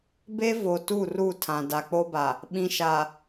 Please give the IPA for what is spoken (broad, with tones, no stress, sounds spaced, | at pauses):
b e˦ v o˨ t u˦˨ r u˦˨ tʰ ã˨ d a˨ k͡p o˦ b a˨ | ɓ ĩ˨ ʃ a˨